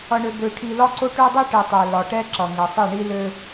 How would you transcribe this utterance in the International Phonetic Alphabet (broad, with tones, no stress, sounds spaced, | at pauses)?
ʌ˨ ɳ ø˨ b ø˨ ʈʰ i˨ l ɒ˦ ǀ o˦ ʈ ø˦ dˤ i˦ ʈ i˨ tˤ ɛ˨ l ɒ˨ ʈ ɛ˦ ǁ ʌ˨ ŋ ɛ˨ sˤ i˦˨ ɳ i˦ l ø˦